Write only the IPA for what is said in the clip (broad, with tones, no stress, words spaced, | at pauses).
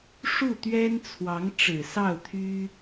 ʂu˥˩ t̪ɥɛ˥nt͡sʰwɑ˧˥ŋ ʈ͡ʂɻ̩˨˩sɑ˥˩ʊ̯t̪ʰy˥